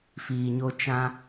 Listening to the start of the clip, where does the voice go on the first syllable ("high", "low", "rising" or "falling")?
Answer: low